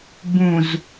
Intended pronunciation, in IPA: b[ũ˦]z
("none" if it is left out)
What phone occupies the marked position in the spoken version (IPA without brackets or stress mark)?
ũ˨